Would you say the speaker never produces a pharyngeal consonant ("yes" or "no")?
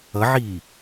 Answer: no